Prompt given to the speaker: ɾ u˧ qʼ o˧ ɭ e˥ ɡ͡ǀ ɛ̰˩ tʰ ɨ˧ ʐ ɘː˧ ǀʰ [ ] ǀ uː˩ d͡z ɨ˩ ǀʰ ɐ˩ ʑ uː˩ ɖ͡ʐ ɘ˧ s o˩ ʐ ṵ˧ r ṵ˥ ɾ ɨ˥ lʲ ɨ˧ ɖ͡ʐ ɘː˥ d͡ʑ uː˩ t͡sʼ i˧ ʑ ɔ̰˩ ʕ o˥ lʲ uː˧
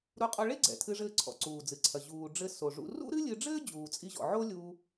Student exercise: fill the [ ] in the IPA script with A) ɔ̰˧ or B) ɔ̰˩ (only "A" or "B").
B